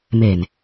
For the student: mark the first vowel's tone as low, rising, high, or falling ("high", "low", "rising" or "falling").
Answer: low